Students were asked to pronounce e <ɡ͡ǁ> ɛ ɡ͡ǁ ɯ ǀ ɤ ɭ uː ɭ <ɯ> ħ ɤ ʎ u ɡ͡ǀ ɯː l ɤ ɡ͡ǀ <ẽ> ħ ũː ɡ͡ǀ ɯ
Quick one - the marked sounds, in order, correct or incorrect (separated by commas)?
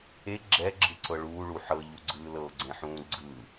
correct, incorrect, correct